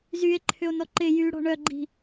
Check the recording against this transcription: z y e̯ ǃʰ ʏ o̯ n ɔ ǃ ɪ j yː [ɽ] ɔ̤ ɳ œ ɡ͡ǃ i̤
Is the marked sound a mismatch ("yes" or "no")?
no